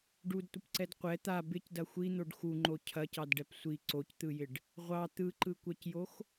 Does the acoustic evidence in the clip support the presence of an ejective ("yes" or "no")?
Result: no